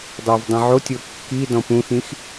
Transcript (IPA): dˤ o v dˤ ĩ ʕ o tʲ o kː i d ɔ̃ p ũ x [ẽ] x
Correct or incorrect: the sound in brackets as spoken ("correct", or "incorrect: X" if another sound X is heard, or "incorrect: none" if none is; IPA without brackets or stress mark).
incorrect: ĩ